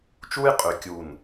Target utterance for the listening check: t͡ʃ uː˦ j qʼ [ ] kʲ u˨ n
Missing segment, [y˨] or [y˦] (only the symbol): y˨